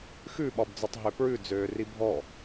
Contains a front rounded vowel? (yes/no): yes